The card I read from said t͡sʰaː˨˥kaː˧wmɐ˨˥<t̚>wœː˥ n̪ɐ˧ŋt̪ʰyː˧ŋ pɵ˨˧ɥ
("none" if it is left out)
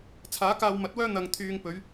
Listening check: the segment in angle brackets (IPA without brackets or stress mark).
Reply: t̚